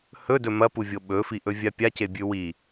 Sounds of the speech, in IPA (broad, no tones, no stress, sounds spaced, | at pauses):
h ɵ d ɵ m ɐ p u vʲ o ɓ ɵ f i ʔ ɵ vʲ a pʲ a c e bʲ ʉ w i